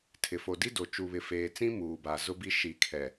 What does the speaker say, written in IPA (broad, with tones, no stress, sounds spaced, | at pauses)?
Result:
tʰ ɪ˨ f o˨ d i˦ d o˨ t͡ʃ u˨ β ɪ˨ f eː˨ t͡s ĩ˦ m uː˨ b a˨ z ʊ˦ b i˦ ʃ i˨ kʰ ɛ˨